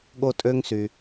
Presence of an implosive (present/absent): present